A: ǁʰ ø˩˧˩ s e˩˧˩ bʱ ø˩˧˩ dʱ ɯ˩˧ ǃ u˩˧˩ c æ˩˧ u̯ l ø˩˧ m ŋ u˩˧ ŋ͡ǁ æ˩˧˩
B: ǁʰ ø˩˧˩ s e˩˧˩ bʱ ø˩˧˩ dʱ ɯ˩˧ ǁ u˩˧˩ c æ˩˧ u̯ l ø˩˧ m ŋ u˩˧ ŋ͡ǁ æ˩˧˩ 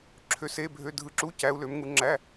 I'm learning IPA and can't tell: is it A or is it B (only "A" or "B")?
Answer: B